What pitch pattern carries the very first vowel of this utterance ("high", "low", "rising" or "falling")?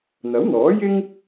rising